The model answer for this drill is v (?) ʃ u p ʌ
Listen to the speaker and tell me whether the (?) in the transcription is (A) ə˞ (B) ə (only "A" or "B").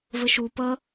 B